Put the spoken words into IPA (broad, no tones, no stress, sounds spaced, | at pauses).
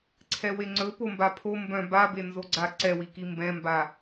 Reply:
ǀʰ ɛ w e ŋ͡ǀ ɵ p o m b a pʰ o m b œ̃ b a b e n z o ɡ͡ǀ a ǀ ɛ w i k i m b ɛ̃ m b a